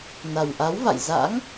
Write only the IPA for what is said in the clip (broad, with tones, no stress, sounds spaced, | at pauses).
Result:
n a˨˩ w ʔ a˨˦ w v a̰˧˨ j z a̰˧˥ ŋ